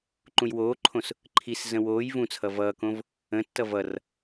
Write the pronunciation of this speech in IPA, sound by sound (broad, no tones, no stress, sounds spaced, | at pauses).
ǃ ũ j w oː ǃʰ õ s | ǃʰ i s z ə̃ w oː j v ũ t͡sʰ ʌ v ʌː k õ v | ə̃ tː ʌ v ʌ r